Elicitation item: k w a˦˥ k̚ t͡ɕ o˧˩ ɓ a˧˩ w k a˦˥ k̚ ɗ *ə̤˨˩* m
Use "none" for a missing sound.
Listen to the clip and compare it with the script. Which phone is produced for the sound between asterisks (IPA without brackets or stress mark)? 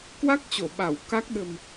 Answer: ə̤˨˩